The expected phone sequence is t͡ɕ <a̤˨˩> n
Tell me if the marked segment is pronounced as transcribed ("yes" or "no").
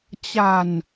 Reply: yes